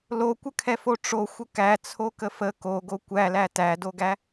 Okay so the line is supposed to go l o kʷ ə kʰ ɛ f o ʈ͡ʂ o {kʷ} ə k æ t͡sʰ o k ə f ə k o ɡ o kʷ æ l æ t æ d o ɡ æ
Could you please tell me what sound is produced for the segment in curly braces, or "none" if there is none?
xʷ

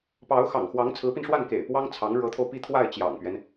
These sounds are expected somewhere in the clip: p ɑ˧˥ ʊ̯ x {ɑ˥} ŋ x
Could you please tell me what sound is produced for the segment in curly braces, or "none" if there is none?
ɑ̰˨˩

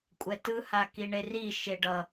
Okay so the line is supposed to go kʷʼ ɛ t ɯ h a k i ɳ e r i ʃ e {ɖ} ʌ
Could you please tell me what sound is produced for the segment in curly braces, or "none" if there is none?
ɖ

